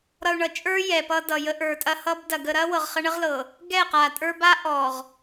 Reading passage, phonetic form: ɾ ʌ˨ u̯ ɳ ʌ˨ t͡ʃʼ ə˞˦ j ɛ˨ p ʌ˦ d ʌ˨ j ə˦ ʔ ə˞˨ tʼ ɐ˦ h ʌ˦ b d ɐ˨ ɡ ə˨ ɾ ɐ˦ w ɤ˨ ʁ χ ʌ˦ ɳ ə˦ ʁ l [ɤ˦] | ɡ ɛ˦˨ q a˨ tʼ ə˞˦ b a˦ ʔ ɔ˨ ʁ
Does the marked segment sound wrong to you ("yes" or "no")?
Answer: yes